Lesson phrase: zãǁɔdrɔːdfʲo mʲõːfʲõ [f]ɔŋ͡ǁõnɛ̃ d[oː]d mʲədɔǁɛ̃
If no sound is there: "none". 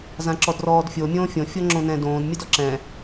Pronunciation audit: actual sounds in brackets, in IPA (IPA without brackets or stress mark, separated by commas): fʲ, õː